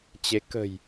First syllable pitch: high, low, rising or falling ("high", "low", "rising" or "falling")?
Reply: rising